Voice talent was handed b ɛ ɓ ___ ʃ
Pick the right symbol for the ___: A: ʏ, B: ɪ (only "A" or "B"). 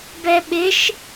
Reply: B